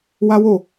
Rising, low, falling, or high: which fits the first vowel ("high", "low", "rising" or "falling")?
high